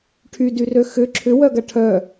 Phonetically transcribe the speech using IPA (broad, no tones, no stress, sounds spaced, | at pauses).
ʈʰ y d y r ø x ʏ ǁʰ ʏ w œ ɡ ɐ ʈʰ œ